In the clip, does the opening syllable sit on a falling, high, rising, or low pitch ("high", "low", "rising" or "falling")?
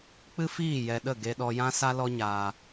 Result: high